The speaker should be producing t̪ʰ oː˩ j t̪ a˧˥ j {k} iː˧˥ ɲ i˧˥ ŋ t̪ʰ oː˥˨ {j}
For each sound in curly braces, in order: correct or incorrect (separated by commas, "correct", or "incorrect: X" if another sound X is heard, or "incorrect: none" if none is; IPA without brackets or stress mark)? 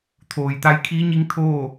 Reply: incorrect: kʰ, incorrect: none